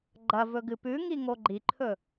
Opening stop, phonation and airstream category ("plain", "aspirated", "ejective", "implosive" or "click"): click